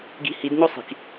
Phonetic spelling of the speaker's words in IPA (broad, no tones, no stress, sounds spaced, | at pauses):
ɡ i̤ h i d ɲ o sˤ i̤ k